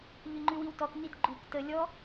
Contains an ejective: no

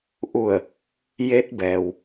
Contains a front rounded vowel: no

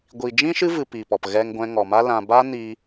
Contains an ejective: no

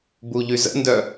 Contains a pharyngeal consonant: no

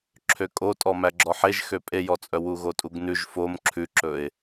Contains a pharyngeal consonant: yes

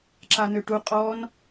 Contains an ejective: yes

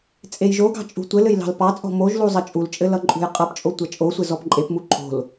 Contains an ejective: yes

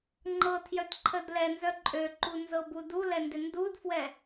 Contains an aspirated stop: yes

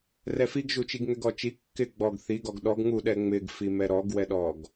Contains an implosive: yes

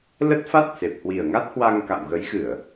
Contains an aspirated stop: no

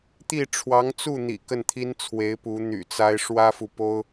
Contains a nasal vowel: no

